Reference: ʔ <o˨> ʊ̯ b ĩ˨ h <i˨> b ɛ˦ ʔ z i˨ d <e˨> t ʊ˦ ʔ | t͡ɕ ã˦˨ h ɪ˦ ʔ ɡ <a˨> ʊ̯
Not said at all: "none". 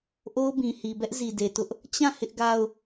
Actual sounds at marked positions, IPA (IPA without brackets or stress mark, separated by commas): o˦, i˨, e˨, a˦